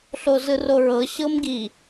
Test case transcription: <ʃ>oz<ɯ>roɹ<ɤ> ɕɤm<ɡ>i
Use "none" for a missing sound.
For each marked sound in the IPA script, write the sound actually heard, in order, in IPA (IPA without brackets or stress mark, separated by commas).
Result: ɬ, ɯ, ɤ, ɡ